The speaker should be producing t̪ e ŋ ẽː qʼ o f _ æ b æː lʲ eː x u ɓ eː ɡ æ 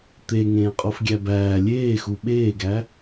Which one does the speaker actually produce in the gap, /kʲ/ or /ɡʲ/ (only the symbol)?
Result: ɡʲ